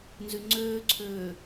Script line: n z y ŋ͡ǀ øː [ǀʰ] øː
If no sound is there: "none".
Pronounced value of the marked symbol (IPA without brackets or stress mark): ǀʰ